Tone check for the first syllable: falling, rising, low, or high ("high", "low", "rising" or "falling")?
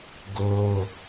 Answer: high